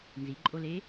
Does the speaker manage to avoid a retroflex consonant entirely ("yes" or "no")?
yes